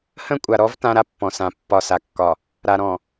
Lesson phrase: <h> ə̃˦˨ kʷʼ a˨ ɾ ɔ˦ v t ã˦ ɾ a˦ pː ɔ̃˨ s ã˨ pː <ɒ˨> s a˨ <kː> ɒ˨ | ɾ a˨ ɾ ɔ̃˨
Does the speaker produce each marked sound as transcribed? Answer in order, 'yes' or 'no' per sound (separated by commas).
yes, yes, yes